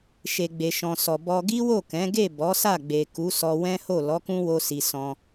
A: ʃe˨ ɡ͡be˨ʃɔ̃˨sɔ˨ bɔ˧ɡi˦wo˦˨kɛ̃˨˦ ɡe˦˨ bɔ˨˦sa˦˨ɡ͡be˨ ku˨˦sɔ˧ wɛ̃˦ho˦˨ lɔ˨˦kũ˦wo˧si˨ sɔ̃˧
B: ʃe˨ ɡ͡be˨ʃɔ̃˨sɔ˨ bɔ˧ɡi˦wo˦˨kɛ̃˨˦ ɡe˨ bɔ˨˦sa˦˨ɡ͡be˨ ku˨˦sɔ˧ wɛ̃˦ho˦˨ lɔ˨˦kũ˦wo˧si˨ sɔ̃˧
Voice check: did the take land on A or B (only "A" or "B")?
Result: A